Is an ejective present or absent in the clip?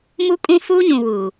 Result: present